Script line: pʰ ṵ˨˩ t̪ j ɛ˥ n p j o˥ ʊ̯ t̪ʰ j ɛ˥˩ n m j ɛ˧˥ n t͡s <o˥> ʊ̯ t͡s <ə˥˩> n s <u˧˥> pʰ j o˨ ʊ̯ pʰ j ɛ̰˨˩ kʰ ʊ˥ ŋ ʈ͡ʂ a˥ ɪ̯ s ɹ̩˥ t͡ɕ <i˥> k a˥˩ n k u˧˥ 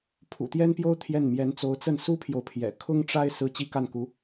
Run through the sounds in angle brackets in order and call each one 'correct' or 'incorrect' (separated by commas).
incorrect, correct, incorrect, incorrect